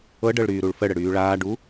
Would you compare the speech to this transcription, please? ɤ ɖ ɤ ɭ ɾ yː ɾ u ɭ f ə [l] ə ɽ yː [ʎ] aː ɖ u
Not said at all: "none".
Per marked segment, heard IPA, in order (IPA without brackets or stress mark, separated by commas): ɽ, ɭ